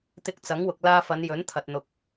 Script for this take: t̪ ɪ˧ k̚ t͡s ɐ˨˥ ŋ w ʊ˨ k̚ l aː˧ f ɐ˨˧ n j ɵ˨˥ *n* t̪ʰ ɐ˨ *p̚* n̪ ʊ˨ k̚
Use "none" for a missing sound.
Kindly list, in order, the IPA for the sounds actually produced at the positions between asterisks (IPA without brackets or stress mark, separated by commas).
n, t̚